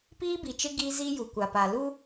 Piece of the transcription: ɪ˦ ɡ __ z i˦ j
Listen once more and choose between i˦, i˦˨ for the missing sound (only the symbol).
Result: i˦